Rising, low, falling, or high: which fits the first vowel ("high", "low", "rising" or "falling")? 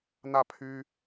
falling